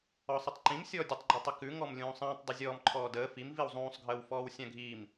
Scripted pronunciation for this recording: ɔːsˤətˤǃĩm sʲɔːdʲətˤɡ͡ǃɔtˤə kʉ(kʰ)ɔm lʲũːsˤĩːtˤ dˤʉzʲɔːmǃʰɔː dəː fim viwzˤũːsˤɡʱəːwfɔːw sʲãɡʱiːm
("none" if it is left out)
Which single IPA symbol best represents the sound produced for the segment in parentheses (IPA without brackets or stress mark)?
ŋ